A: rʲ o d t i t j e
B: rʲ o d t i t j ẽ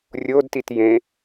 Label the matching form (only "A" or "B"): B